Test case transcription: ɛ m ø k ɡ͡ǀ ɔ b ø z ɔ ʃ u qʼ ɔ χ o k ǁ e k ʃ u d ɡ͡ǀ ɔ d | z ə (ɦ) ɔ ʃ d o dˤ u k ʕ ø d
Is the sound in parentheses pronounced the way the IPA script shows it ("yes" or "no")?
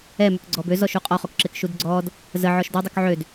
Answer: no